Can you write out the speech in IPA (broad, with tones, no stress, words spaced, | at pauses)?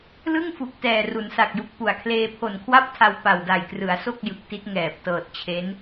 lɯ˥˩ŋ fu˨˩k̚tɛː˨˩ ru˩˦nsa˨˩k̚ju˨˩k̚ pu˨˩a̯ kʰleː˧pʰo˨˩nkʰwa˥˩p̚tʰa˧w pa˨˩wda˨˩jkrɯ˩˦a̯so˥˩k̚ jɯ˨˩k̚ti˦˥t̚ ŋɛː˨˩p̚tɤː˨˩t̚t͡ɕʰe˦˥n